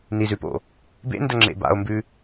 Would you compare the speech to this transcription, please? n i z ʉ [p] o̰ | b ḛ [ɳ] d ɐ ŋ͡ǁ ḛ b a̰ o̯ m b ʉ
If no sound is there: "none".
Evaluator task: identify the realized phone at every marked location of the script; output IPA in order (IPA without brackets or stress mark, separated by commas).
p, n